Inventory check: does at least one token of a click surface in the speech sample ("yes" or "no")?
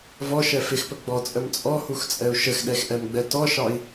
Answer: no